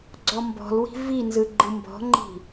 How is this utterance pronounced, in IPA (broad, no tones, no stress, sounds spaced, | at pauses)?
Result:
ɡ͡ǀ ɔ m b ɔ̤ l w i̤ v i n z ɯ ɡ͡ǃ ɯ m b ɔ̤ ŋ͡ǃ i̤